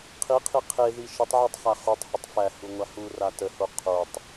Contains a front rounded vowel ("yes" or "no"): no